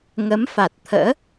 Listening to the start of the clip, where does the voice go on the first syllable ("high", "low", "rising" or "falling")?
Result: rising